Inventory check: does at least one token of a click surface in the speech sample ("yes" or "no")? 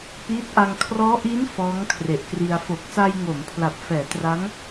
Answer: no